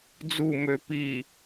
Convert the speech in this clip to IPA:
d͡z u m ø p i

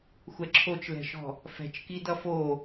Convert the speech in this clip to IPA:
xʷ ɛ ǁʰ o t͡ʃ l ɛ̤ ʃ ɔ̤ | f ɛ̤ t͡ʃ k i d ʌ f o

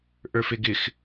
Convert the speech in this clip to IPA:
ʔ ə˞ f e ɡ ɪ x

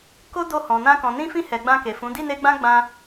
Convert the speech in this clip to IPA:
k o˦ d o˧ h ɔ̃˨ n ã˧ k ɔ̃˨ n ĩ˧ f ĩ˧ h ɛ˨ ɡ͡b ã˧ k e˨ f ũ˨˦ d i˦˨ n e˧ ɡ͡b ã˦ ɡ͡b ã˧

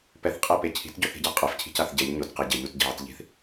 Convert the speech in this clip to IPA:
p ɛ θ qʼ e p e cʰ i̤ t ɟ o θ i̤ ɟ a qʼ ɛ f cʰ i̤ c a θ ɟ ɛ ʎ ɲ o t q ɛ ɟ ɛ ʎ u t ɟ i̤ ʕ ɪ t ʎ i̤ θ

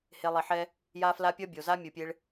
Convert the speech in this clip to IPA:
h e˧ lˠ i˨ ħ ɛ˦ | j a˦ f l a˦ pʲ ʌ˦ bʲ o˨ z a˦ mʲ ɯ˨ pʲ e˧ ɭ

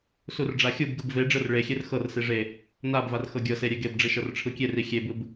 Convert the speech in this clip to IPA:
s u r ɖ͡ʐ a xʲ u b ɡ ɯ b v e ɖ͡ʐ ɯ r ɭ e xʲ e r x ɤ r s i ʐ e | n a b v a r x ɤ ɡʲ ɤ s e ɾʲ e ɡ e b ɖ͡ʐ i ʃ ɤ r ʈ͡ʂʰ ɯ kʲ e r i xʲ e b ɯ b

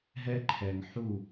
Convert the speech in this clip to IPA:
ɦ ɛ˦ ǃʰ ɛ˨ ŋ ħ u˦˨

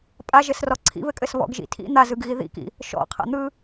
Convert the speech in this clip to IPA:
pʼ a ʒ ɘ s r ɔ ǀʰ ḭ β ɘ kʼ ɘ s β ɔ̰ ɡ ʒ ḭ tʰ ḭ n̪ a z ɯ ɡ ɣ i ð ḭ k ḭ | ʃ ɔ̰ qʰ a̰ n̪ ɯ

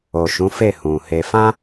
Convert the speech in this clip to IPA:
o˨ ʃ ũ˨˦ f e˦˨ h ũ˨ h e˧ f ã˦

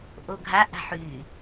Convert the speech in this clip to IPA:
ʔ o ɡʱ a ʔ a̤ ħ y

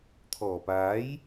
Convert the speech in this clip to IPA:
t̪ʰ ɔː˨˩ p aː˨˥ j

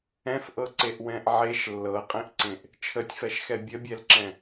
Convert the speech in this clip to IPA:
ɛ̃ f ʔ ɤ ǀ e ʔ w ɛ̃ ʔ ʕ e ʃ lː ɤ qʼ ẽ ʔ ǀ ẽ ʔ | t͡ʃʰ ə tʲ f ɛ ʃ x ɛ bʲ ə bʲ ɛ l ǁ ɛ̃

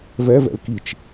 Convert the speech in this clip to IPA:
v ɛ v ɛ̰ l k i t͡ʃ

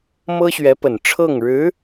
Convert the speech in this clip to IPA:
m ɤ˥ ɕ ɥ ɛ˧˥ p ə˨˩ n ʈ͡ʂʰ ɤ˥˩ ŋ ɻ ɻ̩˧˥

